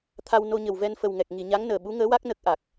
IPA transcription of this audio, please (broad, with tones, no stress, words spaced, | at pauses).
t̪ʰa˧wno˧ɲə˨˩w vɛ˧nfə˨˩wŋɛ˨˩k̚ ŋi˨˩˨ɲa˧˥ŋnəː˨˩ ɓu˧˥ŋəː˧˥wa˦˥k̚ nə˦˥k̚ʔa˨˩k̚